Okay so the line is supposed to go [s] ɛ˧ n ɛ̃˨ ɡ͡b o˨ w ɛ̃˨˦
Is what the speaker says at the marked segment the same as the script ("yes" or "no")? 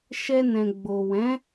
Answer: no